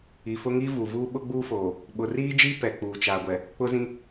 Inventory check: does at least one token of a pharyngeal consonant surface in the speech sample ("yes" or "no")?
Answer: no